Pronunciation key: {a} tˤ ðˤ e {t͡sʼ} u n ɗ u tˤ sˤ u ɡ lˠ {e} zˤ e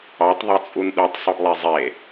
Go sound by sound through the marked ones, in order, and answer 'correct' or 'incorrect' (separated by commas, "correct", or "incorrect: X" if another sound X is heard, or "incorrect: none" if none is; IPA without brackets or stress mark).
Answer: incorrect: ɑ, correct, correct